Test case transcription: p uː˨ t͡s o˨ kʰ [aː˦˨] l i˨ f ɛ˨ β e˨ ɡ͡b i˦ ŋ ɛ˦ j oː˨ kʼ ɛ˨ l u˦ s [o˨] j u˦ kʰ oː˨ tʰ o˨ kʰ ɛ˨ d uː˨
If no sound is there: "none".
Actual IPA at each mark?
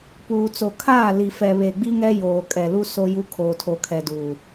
aː˦˨, o˦

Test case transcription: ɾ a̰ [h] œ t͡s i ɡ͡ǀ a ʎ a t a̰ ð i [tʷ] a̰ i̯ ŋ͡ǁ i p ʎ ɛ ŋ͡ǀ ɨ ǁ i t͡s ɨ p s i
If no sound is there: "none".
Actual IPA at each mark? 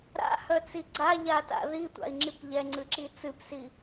h, tʷ

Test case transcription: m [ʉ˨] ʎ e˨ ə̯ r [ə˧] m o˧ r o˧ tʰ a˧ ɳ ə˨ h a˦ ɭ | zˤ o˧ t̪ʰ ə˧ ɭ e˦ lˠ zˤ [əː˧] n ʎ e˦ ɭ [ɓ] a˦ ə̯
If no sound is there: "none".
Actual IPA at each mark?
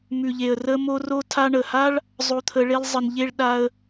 ʉ˨, ə˧, ə˧, ɗ

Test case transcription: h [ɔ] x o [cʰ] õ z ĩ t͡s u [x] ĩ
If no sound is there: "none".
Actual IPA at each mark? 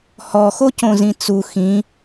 ɔ, c, x

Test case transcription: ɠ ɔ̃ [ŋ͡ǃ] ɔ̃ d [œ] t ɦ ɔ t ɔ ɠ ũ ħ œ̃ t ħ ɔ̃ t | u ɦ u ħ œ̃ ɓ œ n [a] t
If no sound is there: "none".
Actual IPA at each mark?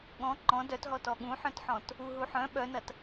ŋ͡ǃ, œ, ɐ

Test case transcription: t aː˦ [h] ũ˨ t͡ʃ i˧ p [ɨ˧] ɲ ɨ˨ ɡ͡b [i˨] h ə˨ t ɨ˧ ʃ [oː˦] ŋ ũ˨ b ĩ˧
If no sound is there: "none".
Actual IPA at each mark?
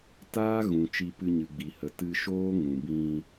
ɣ, ɨ˧, i˨, oː˦

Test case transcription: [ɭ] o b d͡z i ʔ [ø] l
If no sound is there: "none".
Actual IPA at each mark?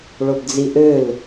ɭ, ø

